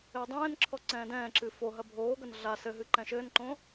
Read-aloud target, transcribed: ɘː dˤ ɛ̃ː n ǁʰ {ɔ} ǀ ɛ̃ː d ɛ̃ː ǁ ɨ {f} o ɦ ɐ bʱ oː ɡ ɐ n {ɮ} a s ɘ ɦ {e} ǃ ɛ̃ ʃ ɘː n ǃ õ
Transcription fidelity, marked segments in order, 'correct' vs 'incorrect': correct, correct, correct, incorrect: ɨ

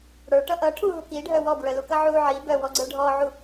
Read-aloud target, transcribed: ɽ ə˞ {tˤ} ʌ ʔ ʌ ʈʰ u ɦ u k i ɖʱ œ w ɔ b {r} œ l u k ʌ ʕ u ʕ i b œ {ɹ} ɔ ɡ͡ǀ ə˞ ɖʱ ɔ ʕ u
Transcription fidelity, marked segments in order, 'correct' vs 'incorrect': incorrect: ʈ, incorrect: ɹ, incorrect: w

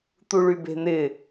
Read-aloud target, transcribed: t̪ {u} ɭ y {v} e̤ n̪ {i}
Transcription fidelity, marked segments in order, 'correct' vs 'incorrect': correct, incorrect: b, incorrect: ɪ

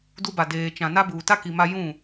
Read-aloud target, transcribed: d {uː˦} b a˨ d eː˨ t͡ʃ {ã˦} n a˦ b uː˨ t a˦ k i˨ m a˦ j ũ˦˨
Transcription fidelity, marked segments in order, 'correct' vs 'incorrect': incorrect: u˦, incorrect: ã˨

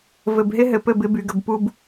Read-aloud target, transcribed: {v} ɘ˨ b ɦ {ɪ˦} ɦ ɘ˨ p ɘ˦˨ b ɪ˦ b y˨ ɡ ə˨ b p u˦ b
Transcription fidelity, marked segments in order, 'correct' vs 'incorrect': correct, correct

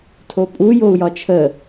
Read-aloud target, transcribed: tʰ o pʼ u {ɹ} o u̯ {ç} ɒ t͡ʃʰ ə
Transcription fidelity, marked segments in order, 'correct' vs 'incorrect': incorrect: j, incorrect: j

